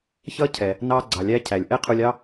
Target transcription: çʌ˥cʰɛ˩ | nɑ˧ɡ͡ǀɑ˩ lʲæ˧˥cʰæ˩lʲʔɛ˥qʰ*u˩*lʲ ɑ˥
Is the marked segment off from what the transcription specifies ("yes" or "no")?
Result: yes